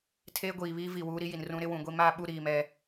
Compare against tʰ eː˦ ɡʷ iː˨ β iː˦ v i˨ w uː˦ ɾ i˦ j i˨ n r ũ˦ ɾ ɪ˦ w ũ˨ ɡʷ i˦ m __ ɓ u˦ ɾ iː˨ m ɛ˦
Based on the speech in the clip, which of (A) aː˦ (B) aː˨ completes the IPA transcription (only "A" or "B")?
A